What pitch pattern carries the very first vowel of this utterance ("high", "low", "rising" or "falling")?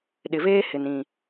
low